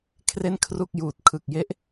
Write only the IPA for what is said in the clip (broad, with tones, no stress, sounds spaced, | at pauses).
kʰ r e˥˩ n kʰ r u˥˩ k̚ j uː˨˩ t̚ kʰ ɯ˨˩ k̚ j e˦˥ ʔ